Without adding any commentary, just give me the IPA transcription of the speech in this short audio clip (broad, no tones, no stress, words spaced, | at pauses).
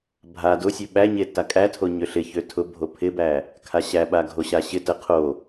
bʱa dʊsʲø ɓæɲe takʼætʰo ɲøɬɪçø tʰʊbʱo pʰɪbæ | kʰaɕæɓa ɡʱoɕaɕɪtə qʰo